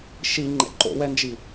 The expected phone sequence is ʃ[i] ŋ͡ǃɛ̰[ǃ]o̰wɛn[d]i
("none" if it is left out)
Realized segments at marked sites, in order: i, ǃ, d͡ʒ

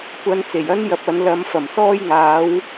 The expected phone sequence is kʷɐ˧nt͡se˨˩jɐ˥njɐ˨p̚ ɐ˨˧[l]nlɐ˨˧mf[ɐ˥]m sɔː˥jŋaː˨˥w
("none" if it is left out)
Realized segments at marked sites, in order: none, ɐ˨˩

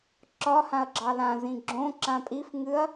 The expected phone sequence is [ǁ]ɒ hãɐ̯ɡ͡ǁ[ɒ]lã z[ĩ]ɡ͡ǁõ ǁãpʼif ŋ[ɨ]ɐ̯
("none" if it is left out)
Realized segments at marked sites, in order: ǁ, ɑ, ĩ, ɨ

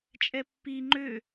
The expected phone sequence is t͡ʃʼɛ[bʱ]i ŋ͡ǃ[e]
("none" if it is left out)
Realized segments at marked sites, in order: pː, ø

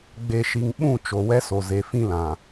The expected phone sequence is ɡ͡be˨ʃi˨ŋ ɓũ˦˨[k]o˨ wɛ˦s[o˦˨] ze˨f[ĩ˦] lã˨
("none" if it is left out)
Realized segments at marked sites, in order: t͡ʃ, o˨, ĩ˦

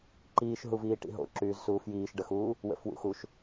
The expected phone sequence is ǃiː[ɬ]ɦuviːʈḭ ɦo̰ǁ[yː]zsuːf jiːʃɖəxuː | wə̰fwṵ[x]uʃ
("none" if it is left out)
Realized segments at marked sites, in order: ʃ, yː, x

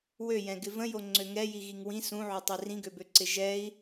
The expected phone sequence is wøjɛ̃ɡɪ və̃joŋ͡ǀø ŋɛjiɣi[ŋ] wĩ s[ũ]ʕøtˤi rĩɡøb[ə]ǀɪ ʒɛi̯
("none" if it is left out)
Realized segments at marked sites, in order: ŋ, ũ, ø

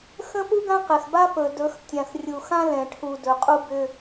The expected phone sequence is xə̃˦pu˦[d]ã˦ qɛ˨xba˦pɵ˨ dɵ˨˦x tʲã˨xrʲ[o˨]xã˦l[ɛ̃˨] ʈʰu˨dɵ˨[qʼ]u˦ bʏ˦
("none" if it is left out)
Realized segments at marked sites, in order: ɡ, u˨, ɛ̃˨, qʼ

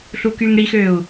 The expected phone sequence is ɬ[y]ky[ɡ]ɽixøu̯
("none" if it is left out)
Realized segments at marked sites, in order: u, ŋ

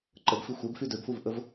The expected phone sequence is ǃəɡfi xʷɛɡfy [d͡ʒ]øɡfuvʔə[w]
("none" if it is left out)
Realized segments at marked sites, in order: d, v

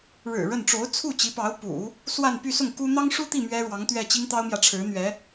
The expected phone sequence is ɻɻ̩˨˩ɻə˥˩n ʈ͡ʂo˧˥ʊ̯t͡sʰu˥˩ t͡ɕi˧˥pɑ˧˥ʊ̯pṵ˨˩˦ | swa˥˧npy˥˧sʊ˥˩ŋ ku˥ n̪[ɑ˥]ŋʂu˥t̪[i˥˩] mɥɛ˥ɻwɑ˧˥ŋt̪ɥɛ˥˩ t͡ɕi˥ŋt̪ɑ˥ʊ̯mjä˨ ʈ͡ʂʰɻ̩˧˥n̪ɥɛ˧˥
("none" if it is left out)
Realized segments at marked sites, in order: ɑ˥, i˥˩

